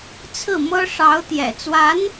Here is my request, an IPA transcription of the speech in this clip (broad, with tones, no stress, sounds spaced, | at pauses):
t͡sʰ ɹ̩˥˩ m ɤ˥ ʂ ɑ˧˥ ʊ̯ t̪ j ɛ̰˨˩ t͡s w a˧˥ n